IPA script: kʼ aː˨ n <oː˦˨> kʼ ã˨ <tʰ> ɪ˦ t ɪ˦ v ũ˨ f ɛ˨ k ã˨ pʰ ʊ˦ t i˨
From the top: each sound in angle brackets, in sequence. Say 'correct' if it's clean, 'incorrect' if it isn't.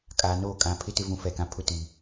correct, incorrect

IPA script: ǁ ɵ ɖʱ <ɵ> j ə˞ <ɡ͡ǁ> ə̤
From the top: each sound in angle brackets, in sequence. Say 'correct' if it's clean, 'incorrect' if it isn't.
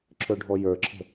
incorrect, incorrect

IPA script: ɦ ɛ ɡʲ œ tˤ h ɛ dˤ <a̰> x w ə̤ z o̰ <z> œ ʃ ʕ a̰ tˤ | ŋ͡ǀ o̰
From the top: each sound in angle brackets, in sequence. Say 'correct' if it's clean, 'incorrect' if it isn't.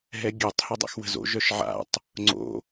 correct, incorrect

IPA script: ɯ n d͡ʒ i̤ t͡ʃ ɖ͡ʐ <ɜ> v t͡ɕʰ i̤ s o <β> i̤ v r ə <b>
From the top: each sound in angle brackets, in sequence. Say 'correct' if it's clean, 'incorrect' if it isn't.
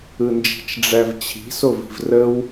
incorrect, incorrect, incorrect

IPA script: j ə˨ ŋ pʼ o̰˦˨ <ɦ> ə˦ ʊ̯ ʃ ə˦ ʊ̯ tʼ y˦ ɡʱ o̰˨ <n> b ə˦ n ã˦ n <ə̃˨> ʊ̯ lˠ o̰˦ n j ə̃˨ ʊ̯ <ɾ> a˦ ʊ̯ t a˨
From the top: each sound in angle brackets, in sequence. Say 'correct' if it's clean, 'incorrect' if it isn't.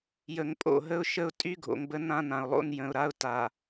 correct, incorrect, incorrect, correct

